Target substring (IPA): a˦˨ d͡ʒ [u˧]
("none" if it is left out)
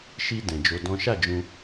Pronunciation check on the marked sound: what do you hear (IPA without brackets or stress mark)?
ũ˧